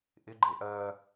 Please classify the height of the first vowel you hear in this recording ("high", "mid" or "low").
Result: high